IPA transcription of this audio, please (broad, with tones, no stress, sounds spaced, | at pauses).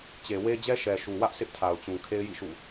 t͡ɕ e˨ w e˦ d͡ʑ ɛ˦ ʃ ɛ˨ ʃ u˨ w ä˦ ʔ s ɪ˦ ʔ tʰ a˨ ʊ̯ t͡ɕ ũ˨ kʰ e˦ ɪ̯ j ḭ˦˨ ʃ ṵ˦˨